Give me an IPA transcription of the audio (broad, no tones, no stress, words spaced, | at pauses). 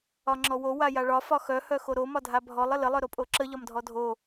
ɒŋ͡ǁɔwo wajaɭɒ fɒxœ hœxoɾo mɒdʱabʱɔlˠ ələ lˠœɾopʼoǁə ʎɒmdʱɔdʱo